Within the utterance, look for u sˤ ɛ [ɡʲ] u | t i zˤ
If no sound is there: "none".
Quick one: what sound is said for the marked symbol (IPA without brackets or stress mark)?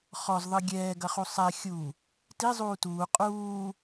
xʲ